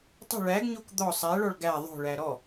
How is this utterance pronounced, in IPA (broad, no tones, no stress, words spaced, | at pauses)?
tˤə̤ ɭæɡɲok d̪ɔ sˤæɭɔɭ ɡæ ðˤo̤ɭæ ɾɔ